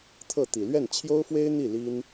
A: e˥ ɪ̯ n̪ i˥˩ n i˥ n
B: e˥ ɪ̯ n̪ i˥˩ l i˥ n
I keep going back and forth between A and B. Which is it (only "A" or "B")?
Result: B